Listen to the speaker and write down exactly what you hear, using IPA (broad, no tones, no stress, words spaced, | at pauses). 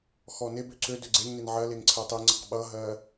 xɔnebø ǀø døɡ͡ǀeŋnen ʕɜleŋ ǀʰɜtˤiŋ͡ǀəq ɓʌɦɜ